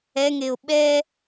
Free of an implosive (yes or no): no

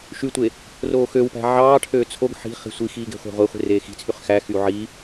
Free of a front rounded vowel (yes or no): no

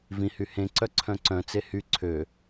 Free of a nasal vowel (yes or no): no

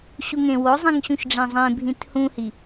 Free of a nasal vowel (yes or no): no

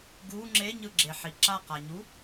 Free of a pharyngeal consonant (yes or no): no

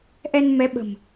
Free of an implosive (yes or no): no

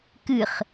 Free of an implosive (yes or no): yes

